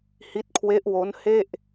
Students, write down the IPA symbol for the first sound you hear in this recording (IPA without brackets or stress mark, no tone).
h